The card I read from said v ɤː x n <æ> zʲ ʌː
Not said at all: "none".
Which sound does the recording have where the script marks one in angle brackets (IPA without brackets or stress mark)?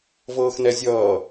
ɛ